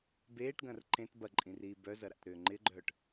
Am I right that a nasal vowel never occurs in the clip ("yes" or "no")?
no